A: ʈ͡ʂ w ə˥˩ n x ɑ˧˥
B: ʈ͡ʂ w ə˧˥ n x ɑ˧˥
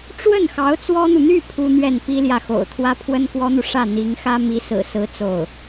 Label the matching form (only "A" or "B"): A